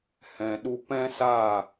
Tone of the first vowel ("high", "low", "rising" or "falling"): low